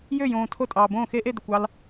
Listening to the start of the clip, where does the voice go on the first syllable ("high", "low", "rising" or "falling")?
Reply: falling